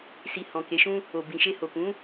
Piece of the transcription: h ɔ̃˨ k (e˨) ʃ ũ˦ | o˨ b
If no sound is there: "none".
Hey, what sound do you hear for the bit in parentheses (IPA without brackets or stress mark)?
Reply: e˨˦